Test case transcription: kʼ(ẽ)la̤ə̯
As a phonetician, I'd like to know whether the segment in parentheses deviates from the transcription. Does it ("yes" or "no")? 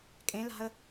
no